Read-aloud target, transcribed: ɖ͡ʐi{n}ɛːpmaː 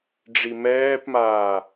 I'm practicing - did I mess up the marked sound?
yes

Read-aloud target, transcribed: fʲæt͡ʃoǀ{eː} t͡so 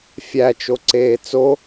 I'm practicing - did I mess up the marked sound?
no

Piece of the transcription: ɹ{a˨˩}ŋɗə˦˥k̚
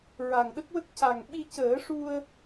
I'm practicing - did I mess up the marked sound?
no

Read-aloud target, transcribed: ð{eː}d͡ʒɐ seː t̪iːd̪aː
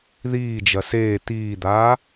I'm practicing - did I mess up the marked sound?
yes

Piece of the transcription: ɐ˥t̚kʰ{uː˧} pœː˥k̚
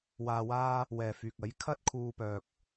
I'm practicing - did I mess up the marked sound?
no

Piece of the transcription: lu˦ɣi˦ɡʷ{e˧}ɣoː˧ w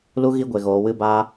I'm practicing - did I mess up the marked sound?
no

